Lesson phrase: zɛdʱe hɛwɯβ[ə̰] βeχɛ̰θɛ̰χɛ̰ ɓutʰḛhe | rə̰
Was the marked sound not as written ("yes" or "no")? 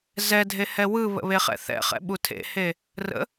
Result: no